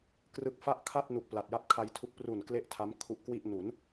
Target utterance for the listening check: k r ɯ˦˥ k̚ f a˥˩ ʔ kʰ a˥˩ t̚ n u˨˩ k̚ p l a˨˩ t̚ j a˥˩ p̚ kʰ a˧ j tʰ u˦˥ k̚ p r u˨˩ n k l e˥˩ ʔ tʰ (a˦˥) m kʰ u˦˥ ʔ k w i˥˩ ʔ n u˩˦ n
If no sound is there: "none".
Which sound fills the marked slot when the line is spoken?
a˦˥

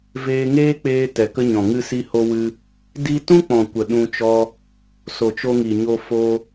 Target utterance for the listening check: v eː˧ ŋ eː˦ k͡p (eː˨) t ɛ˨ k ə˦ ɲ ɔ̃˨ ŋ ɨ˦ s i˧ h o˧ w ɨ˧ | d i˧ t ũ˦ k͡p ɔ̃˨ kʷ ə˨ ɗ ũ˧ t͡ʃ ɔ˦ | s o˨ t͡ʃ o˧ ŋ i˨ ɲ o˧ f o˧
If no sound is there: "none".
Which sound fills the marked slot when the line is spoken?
eː˧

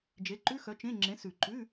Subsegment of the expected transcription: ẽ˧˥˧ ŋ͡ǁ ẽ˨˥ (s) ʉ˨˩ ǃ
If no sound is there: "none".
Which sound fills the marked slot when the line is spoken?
s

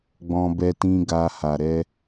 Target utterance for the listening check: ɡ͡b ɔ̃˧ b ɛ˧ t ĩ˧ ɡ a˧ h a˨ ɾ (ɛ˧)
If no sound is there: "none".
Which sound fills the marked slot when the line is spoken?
ɛ˧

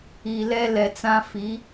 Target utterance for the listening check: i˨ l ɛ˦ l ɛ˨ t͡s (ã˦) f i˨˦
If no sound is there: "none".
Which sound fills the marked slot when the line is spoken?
ã˦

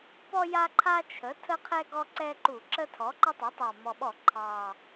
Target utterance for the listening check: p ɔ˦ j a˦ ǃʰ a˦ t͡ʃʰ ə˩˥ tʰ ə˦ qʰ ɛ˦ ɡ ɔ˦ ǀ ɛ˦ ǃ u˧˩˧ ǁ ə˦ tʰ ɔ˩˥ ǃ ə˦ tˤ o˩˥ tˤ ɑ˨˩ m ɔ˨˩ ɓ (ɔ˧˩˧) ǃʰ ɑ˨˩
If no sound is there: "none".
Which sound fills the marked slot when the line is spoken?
ɔ˧˩˧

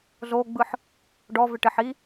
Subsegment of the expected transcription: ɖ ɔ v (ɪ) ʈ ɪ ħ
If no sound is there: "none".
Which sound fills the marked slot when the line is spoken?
ɪ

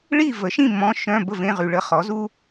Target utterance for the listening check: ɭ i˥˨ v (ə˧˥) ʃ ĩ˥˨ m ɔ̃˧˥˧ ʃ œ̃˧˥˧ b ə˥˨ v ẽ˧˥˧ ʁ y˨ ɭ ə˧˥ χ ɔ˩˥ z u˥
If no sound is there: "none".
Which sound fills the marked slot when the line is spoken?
ə˩˥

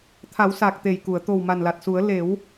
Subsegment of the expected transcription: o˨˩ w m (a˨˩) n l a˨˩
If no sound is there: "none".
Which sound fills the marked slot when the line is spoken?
a˨˩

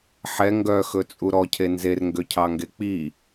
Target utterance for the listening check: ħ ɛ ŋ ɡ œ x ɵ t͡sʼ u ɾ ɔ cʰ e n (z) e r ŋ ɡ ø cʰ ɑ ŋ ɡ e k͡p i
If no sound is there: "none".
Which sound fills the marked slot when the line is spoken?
z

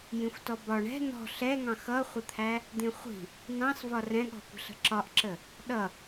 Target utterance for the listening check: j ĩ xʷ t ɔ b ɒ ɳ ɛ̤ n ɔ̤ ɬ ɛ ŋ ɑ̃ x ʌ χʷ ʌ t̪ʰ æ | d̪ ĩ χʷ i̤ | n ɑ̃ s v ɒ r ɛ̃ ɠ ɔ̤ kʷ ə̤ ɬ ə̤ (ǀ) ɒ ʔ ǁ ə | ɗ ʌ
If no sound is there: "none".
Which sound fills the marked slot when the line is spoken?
ǁ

